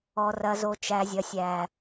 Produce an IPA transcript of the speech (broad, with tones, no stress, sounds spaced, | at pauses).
ɔ˨ r ɐ˨ z o˨ t͡ʃ æ˨ zʲ ɐ˨ sʲ æ˨